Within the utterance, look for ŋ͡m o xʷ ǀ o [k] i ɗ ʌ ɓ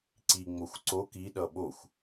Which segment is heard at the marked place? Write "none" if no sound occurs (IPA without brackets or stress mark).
k